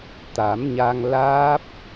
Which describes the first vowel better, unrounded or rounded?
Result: unrounded